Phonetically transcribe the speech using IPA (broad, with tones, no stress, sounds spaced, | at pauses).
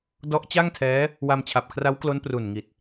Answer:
d ɔ˦˥ ʔ t͡ɕ a˥˩ ŋ tʰ ɛː˦˥ | w a˧ m t͡ɕʰ a˨˩ p̚ kʰ r a˦˥ w k l o˦˥ n p r u˨˩ n ŋ i˨˩ t̚